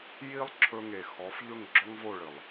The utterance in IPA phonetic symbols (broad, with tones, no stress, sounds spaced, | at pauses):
j i˦ lˠ ǁʰ ɵ˧ ŋ e˨ x ɔ˨˦ f ʎ ɵ˦˨ ŋ ɡ͡ǁ ɔ˦ ŋ v o˦˨ ɭ ɨ˨ lˠ